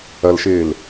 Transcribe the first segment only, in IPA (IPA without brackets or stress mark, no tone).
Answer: ɐ